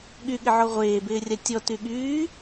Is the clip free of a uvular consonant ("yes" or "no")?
no